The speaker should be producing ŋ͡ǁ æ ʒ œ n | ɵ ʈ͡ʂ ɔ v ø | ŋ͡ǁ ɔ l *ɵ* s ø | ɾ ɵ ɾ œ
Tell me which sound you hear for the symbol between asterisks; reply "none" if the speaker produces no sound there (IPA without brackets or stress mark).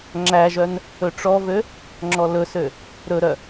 ɵ